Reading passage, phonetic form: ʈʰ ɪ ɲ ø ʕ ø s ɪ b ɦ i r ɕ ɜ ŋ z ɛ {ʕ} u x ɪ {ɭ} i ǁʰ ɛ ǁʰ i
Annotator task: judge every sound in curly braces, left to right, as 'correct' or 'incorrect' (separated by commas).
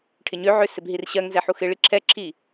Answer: incorrect, correct